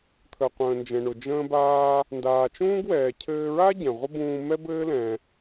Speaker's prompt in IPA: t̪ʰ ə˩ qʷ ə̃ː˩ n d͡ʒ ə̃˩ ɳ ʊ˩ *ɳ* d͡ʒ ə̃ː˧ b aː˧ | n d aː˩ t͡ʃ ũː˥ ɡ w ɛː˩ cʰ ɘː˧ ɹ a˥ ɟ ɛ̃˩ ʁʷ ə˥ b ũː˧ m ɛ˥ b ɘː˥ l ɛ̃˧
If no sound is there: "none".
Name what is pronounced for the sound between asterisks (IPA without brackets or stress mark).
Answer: none